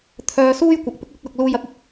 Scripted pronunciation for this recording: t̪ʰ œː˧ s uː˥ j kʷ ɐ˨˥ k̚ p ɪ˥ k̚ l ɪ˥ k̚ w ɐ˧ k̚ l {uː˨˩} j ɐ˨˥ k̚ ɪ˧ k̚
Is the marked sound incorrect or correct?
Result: incorrect: uː˨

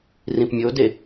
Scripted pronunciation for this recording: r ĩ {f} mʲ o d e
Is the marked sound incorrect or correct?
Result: incorrect: p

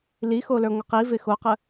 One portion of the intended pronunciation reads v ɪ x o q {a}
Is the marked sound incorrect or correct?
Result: incorrect: ə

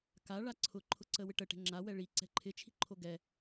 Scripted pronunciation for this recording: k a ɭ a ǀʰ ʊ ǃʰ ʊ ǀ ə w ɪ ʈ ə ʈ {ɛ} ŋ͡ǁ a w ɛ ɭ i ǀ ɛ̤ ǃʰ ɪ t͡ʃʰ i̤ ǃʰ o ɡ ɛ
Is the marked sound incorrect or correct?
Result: incorrect: ɛ̤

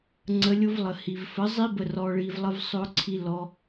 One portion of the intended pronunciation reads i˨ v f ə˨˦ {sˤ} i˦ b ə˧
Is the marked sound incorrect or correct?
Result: incorrect: zˤ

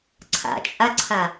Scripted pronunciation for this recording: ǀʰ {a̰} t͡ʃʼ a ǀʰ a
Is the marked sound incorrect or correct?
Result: correct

